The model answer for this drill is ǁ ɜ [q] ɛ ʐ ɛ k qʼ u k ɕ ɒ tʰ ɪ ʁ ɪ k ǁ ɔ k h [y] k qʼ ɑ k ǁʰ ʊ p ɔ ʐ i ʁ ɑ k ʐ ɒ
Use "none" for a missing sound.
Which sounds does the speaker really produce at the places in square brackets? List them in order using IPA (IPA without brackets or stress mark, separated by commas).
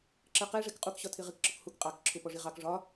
q, u